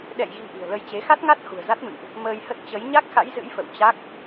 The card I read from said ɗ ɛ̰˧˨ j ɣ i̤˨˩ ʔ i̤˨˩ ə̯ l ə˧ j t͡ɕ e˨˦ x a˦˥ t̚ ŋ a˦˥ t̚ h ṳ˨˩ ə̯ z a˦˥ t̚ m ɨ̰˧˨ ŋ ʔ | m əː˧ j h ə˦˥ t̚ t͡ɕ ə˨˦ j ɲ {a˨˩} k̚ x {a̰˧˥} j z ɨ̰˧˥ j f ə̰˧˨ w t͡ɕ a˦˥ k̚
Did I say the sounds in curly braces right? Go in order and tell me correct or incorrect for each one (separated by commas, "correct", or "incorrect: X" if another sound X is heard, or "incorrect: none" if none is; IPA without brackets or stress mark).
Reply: incorrect: a˦˥, correct